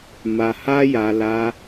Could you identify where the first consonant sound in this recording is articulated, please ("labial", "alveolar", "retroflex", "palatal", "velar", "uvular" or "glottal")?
labial